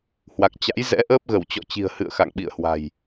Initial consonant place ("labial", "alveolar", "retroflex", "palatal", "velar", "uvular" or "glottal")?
glottal